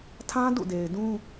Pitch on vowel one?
high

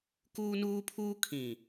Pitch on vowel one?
high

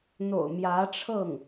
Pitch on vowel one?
low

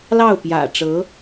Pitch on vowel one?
falling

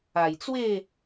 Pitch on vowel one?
low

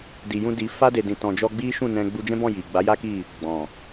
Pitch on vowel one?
low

